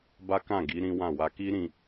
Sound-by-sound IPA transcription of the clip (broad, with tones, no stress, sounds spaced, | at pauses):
b a˦ k ã˦˨ ɡ i˨˦ ɾ ĩ˦ w ã˦˨ w a˧ k i˦ ɾ ĩ˧